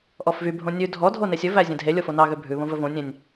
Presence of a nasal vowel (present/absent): present